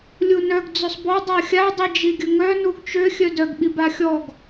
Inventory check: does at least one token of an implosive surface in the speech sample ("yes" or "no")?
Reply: yes